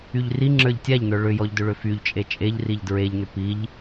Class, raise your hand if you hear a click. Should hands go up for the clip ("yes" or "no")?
yes